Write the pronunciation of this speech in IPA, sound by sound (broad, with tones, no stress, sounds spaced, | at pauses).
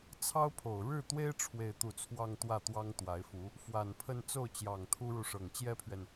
t͡sʰ ɑ˥ ʊ̯ pʰ o˨˩ ʊ̯ ɻ ɻ̩˥˩ t̪ w e˥ ɪ̯ ʈ͡ʂʰ w e˥˧ ɪ̯ t̪ u˥˧ t͡sʰ w ɑ˥˧ ŋ t̪ w ä˥˩ t̪ w ɑ˥ ŋ t̪ w a˧˥ ɪ̯ f u˧˥ | f w a˨˩ n pʰ ə˥˧ n t͡s o˥˩ ʊ̯ t͡ɕ j ɑ˨˩ ŋ t̪ʰ u˥ ɻ u˨ ʂ ɤ˨˩ ŋ t͡ɕ j ɛ˥ pʰ ɥ ɛ˨ n